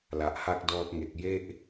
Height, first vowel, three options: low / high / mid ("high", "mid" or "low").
low